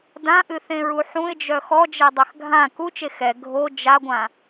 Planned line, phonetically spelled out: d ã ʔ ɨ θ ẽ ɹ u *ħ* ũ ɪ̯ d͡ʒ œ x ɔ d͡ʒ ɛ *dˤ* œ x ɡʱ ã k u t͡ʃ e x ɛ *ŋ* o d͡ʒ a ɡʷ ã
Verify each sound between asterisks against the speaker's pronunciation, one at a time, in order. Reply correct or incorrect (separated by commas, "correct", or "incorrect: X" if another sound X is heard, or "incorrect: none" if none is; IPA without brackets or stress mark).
correct, correct, incorrect: ɡʱ